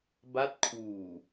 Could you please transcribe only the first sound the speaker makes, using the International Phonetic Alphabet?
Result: b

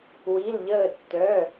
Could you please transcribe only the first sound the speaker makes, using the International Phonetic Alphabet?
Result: w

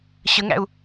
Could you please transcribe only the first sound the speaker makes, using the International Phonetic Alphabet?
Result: ɕ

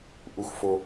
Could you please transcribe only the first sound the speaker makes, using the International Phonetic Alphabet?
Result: ʔ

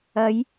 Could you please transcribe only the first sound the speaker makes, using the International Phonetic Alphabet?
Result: ɐ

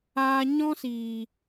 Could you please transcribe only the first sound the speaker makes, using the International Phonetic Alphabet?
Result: aː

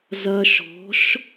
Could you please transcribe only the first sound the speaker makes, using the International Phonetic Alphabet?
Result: z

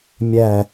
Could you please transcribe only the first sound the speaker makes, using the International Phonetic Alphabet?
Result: mʲ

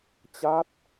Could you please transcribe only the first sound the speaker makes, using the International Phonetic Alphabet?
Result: t͡ɕ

